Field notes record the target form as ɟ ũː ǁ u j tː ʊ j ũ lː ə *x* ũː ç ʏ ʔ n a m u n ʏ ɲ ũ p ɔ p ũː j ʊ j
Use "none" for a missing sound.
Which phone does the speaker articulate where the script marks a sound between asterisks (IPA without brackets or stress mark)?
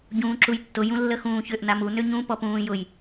x